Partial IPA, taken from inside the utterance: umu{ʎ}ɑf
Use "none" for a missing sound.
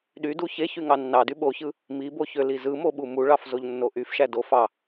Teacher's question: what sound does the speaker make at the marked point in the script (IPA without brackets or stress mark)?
ɭ